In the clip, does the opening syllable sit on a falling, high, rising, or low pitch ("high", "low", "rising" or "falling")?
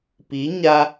rising